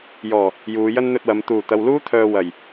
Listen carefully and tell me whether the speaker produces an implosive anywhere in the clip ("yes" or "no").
no